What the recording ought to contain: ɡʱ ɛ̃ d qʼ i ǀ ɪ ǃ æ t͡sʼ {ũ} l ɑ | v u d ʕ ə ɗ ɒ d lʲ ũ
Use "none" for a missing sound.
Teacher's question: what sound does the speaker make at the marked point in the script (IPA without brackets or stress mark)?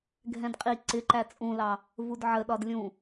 ũ